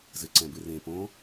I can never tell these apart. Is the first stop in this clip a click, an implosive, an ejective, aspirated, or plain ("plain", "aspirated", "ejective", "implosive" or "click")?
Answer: click